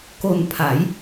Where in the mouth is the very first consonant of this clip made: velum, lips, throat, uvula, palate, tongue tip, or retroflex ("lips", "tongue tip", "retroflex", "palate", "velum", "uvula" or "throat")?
velum